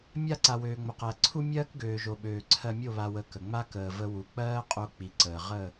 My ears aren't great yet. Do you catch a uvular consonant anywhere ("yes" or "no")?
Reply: yes